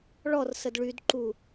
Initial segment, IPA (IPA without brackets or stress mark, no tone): ɭ